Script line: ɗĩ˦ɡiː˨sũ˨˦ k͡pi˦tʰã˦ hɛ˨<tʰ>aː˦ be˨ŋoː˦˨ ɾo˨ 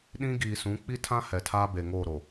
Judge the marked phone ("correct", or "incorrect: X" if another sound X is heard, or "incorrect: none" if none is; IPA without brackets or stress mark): correct